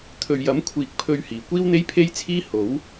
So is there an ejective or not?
no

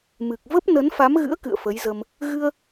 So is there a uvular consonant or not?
no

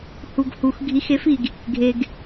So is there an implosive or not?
no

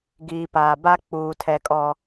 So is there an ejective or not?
yes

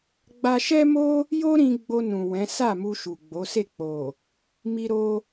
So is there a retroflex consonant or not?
no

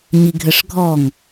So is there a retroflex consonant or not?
yes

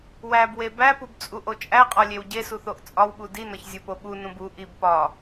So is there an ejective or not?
yes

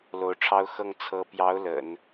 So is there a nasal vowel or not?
no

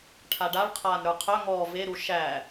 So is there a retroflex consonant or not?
yes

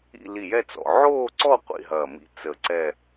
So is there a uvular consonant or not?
yes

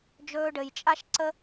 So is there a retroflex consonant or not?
yes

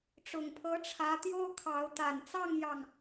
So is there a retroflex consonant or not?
yes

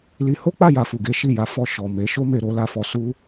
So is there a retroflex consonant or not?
no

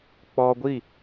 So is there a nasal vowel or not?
no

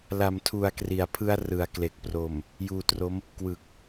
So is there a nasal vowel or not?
no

